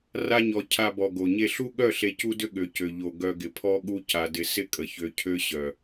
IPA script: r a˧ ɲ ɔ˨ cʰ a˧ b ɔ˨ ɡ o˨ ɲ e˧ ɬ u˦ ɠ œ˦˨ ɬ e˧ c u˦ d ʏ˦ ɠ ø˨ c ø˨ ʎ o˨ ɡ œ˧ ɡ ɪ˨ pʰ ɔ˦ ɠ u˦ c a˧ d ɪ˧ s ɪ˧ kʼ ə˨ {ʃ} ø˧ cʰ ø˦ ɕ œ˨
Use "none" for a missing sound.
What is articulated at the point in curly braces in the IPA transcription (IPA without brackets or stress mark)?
ç